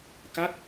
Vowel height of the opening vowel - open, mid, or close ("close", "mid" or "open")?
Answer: open